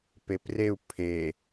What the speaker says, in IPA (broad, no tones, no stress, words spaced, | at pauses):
pepreu̯ pʰe